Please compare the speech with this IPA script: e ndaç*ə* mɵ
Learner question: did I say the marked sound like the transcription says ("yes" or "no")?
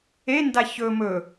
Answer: no